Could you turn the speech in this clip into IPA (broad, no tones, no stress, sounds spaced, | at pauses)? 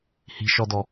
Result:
h i̤ ʃ ɔ d ɔ